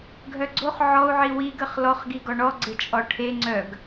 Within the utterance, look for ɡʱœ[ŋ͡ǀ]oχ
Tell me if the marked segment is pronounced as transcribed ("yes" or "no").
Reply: no